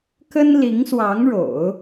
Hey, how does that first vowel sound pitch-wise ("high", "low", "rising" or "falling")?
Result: high